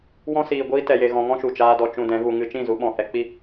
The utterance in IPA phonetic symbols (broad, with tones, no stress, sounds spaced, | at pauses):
w ɔ̃˦ s iː˧ ɡʷ iː˦ t ɛ˧ j e˧ ɣ ɔ̃˧ ŋ ɔ̃˦ ʃ u˨ t͡ʃ aː˧ d ɔ˧ t͡ʃ ũ˧ d ɛ̃˨˦ ɣ u˧ ŋ ɨ˧ t͡ʃ ĩ˦˨ z u˨˦ ɓ ɔ̃˨ h ɛ˧ k͡p i˦